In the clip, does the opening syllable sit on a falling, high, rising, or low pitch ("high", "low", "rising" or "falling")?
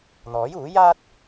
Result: rising